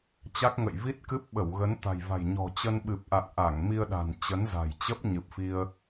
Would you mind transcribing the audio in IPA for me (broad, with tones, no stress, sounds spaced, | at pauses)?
t͡ɕ a˦˥ k̚ ŋ ə̰˧˨ j v i˦˥ t̚ k ɨ˦˥ p̚ ɓ ə˧˩ w ɣ ə˨˦ n t̪ a̤˨˩ j v a̤˨˩ j ɲ ɔ̤˨˩ t͡ɕ ə˧ n ɓ ɨ˨˩ p̚ ʔ a̰˧˨ n ʔ a˧˩ ŋ m i˧ ə̯ ɗ a̤˨˩ n t͡ɕ ə˨˦ n z a̤˨˩ j t͡ɕ ə˦˥ p̚ ɲ ɨ˨˩ p̚ f i˧ ə̯